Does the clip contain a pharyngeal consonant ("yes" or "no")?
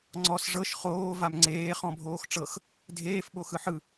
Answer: yes